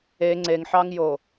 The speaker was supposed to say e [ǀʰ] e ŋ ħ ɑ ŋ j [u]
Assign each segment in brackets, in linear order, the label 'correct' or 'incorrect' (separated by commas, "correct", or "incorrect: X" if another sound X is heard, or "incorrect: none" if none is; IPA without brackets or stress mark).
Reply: incorrect: ŋ͡ǀ, incorrect: o